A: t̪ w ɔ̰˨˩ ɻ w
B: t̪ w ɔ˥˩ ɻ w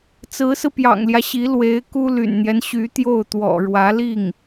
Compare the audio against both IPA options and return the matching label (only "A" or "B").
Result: A